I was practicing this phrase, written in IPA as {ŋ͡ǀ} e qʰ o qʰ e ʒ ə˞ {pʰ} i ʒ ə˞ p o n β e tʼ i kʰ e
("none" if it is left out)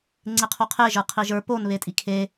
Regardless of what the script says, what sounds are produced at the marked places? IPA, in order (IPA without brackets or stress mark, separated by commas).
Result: ŋ͡ǀ, qʰ